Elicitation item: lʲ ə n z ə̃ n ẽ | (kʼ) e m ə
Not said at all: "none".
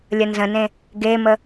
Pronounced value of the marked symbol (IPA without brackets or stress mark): ɡ